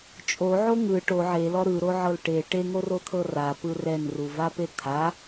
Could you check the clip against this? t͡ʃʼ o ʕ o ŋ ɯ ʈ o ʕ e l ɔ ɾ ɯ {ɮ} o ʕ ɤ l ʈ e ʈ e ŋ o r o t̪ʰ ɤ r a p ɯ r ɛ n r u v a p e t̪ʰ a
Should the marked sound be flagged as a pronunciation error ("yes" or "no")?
yes